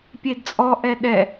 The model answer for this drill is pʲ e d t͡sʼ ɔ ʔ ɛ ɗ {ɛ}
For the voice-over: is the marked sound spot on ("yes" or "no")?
yes